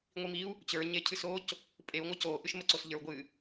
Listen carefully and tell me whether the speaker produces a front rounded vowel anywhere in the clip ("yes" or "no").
no